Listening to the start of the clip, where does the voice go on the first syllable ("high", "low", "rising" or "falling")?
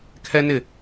high